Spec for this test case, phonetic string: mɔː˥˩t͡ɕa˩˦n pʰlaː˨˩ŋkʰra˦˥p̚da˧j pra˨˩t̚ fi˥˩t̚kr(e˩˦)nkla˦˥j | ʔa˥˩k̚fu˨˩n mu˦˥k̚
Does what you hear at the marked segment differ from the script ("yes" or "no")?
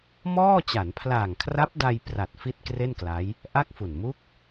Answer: yes